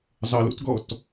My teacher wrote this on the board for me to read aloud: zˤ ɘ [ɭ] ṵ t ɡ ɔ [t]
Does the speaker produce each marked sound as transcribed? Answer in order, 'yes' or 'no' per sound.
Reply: no, yes

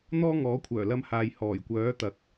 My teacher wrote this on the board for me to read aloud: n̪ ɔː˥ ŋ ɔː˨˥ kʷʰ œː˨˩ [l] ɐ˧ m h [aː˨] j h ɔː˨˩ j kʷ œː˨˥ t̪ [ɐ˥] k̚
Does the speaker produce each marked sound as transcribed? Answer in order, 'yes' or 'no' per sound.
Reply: yes, yes, no

